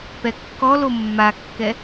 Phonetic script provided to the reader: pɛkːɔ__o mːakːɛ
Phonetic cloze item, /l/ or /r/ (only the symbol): l